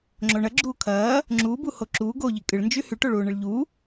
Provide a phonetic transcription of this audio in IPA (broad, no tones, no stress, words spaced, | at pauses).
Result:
ŋ͡ǁoɳɐ ɡ͡ǁuːkʰɐː | ŋ͡ǁuːbuho ǁuː ɡoʎi kʼɨɭnd͡ʒy hyʈoɭuːɳɨɭ ʎu